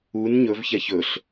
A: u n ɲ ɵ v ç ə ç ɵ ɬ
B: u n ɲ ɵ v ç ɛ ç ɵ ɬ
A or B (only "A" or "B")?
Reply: B